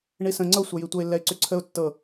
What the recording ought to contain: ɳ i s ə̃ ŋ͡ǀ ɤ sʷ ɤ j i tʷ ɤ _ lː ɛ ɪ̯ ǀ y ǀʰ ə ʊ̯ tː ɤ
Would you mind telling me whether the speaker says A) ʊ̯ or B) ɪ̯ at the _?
B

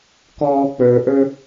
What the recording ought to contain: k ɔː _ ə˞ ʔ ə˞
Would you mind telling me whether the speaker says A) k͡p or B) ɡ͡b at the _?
A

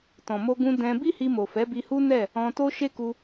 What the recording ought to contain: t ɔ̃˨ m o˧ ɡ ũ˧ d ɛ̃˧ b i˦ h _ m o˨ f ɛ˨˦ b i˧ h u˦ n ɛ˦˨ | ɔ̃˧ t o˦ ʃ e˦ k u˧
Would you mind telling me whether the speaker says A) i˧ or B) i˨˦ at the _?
A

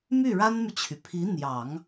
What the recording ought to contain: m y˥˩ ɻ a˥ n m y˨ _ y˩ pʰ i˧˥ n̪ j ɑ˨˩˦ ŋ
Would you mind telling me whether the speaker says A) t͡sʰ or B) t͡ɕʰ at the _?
B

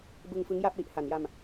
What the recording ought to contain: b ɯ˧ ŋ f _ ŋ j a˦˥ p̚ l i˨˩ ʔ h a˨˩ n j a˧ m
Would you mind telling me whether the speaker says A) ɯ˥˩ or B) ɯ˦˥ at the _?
B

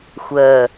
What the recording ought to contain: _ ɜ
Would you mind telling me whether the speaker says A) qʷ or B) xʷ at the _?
B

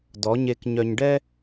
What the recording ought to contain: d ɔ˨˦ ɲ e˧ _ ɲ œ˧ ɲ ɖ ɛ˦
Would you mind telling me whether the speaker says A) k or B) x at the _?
A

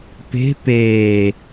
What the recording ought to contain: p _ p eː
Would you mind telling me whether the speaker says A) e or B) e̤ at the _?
B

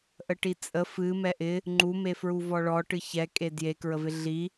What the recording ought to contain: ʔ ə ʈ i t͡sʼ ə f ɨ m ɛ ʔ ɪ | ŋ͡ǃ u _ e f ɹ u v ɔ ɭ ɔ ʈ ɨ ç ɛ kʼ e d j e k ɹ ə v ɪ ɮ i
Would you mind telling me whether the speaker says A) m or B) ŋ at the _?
A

